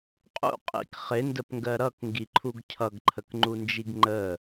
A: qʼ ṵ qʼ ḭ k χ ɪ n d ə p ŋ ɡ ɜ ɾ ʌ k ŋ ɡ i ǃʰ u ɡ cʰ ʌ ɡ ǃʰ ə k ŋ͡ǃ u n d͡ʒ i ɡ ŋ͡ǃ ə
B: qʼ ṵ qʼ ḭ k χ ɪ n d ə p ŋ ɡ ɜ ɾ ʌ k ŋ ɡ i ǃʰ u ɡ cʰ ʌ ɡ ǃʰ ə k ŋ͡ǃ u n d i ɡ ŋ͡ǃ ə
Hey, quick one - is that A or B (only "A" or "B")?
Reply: A